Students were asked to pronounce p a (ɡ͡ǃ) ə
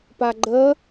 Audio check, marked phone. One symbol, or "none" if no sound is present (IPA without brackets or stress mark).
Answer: ɡ͡ǃ